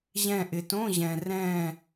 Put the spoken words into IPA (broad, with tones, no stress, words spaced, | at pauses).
ʑɛ̃˧˩ʔɪ˩tõ˧˥˧ʑɛ̃˩ rɛ̃˧˩